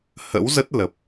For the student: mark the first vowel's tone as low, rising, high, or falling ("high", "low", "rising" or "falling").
rising